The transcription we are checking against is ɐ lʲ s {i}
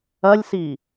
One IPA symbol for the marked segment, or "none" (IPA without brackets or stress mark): i